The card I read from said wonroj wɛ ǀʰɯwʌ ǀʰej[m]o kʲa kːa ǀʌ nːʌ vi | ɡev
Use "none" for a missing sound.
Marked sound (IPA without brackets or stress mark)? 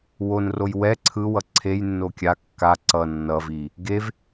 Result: nː